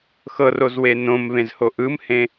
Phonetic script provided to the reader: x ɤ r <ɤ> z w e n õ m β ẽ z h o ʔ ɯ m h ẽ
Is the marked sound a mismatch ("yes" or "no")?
yes